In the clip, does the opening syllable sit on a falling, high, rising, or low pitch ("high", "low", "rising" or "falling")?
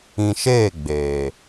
low